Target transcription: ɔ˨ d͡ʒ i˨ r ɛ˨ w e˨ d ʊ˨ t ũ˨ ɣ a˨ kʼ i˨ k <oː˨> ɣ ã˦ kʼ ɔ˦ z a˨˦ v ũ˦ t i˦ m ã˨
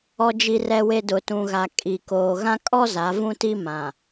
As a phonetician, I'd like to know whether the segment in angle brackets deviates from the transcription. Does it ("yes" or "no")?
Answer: no